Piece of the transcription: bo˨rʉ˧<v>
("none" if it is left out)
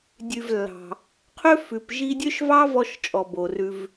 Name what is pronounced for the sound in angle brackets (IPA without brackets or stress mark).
v